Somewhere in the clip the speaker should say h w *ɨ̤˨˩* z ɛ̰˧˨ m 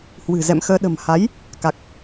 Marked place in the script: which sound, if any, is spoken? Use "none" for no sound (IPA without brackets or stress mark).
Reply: ɨ̤˨˩